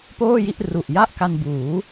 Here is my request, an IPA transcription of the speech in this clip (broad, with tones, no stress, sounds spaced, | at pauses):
p oː˥˩ j i˥˩ ʔ r u˨˩ ʔ j a˥˩ ʔ k a˧ n b uː˩˦